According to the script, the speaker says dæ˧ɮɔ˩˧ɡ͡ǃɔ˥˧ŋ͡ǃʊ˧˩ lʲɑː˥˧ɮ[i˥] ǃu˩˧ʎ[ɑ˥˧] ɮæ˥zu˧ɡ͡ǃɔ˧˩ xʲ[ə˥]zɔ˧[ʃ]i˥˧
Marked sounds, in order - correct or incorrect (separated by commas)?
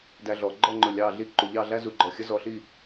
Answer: correct, correct, correct, incorrect